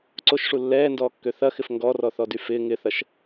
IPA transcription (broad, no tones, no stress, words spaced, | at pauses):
ǀoʃʂu lːɛːndɔːkːø θɐxɪf ŋɡɔrɔθɔdy fɪː ŋɪθɐʃ